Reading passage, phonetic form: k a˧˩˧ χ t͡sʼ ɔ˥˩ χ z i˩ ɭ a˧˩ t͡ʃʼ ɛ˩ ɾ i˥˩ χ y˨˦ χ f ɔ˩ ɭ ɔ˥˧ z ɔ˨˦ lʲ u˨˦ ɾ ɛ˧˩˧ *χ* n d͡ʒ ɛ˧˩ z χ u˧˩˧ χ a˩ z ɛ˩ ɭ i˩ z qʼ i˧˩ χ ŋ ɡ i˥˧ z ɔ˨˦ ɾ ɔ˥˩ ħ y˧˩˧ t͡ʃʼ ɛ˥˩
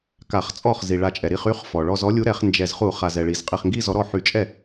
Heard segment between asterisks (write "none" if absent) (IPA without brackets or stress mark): χ